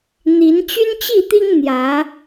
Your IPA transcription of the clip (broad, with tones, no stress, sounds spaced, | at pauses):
n̪ i˨˦ n t͡ɕ y˦ n t͡ɕ i˥˨ t̪ i˦ ŋ n̪ j ä˨˦